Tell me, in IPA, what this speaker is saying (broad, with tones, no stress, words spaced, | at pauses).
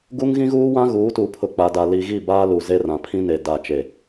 ɡu˦ŋɣĩ˦ɣuː˦wã˦ ɣuː˨˦tu˨ pʰʊ˨ k͡pa˨da˨ li˨ɣi˦˨ baː˦lu˨ze˦ rã˨pʰĩ˦ne˨ da˦˨t͡ʃe˦˨